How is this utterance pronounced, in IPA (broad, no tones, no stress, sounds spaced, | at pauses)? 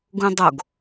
ɡ ũ dˤ o ɡ